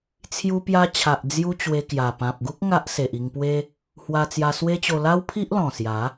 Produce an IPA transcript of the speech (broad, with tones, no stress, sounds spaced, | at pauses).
t͡sʰ j u˧ p j a˧ t͡ɕʰ a˨ ʔ d͡z j u˧ t͡ɕ w e˧ k j a˨˩ p ã˨ p̚ ɡ u˦ k̚ ŋ a˦ ʔ s e˨ ʔ i˧ ŋ p w e˦ | h w a˧ t͡s j a˧ s w e˦ t͡ɕ o˧ l a˦ w pʰ i˦ ʔ l ɔ̃˨˩ s j a˨˦